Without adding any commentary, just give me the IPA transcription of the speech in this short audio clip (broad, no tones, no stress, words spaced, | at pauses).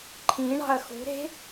ǃʰĩ ɳɑ̤ɐ̯xṳɾe̤